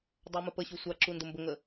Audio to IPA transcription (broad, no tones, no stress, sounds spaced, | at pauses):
dˤ a m ə p ə ɕ u sʷ a ǁ u n d ə m b ə ŋ ə